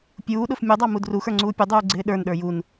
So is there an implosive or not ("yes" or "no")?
yes